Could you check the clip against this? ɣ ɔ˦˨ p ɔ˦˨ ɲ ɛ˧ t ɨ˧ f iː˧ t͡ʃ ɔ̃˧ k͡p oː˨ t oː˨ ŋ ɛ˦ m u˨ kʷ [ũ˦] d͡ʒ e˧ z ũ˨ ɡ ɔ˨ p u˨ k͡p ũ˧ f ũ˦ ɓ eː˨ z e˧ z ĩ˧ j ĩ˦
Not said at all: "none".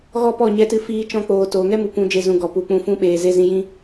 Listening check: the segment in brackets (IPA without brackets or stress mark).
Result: ũ˧